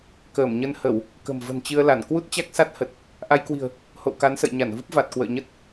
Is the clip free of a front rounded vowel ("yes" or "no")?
yes